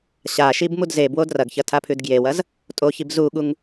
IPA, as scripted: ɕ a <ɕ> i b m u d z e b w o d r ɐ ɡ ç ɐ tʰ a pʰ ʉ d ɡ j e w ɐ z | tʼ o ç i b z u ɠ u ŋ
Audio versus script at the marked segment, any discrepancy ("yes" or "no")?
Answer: yes